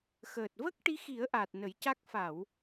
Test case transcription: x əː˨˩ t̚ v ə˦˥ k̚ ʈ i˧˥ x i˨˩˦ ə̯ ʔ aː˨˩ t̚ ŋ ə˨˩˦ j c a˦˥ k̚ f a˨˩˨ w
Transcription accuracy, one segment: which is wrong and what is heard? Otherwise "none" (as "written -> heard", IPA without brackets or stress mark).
ŋ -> n